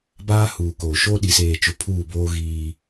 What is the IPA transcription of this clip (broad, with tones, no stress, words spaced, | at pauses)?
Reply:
baː˦huː˨ koː˨ʃo˦ ɗi˨seː˨t͡ʃʊ˨ pʰuː˦˨boː˦ ɣiː˦